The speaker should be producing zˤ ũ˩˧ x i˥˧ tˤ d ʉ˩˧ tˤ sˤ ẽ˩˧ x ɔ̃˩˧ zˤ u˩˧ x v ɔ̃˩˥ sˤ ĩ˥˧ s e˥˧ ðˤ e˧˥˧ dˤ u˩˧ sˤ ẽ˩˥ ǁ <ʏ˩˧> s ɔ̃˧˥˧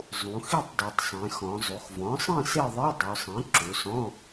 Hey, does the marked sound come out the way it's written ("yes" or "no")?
no